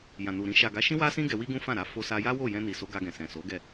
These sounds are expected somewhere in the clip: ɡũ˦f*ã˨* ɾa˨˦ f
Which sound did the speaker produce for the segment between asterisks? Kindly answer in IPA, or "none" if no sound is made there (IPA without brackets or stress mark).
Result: ã˦˨